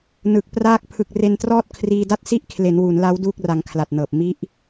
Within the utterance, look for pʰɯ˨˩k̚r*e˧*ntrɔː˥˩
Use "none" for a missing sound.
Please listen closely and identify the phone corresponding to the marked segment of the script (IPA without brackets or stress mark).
e˧